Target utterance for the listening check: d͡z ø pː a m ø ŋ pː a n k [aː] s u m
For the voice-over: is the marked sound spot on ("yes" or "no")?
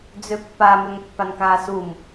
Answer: yes